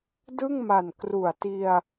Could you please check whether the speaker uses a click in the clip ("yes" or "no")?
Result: no